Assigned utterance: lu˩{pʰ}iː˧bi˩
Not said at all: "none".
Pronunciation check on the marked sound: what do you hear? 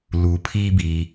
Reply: pʰ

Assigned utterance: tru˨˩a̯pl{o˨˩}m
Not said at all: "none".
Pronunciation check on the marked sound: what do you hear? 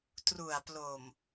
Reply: o˨˩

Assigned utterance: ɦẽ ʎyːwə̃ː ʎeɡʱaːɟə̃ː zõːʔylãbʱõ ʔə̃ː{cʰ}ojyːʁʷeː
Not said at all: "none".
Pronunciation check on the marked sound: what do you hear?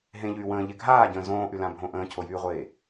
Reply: cʰ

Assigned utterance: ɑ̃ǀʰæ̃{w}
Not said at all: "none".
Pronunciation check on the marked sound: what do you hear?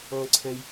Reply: j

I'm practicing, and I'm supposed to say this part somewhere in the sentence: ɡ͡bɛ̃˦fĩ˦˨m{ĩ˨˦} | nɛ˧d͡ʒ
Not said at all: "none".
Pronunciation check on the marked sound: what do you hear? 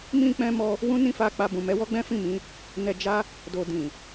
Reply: ĩ˨˦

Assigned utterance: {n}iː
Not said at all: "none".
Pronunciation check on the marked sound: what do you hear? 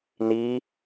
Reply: n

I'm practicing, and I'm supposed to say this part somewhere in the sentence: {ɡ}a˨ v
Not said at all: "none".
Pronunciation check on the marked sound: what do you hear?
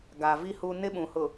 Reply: ɡ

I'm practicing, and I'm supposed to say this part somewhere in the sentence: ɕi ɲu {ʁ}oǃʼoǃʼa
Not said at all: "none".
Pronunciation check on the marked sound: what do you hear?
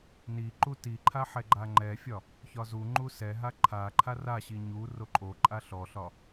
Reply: r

